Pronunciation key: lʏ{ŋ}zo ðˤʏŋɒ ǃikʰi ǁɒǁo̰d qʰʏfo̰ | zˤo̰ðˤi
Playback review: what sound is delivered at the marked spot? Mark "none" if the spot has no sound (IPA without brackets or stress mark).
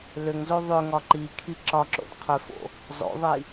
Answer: ŋ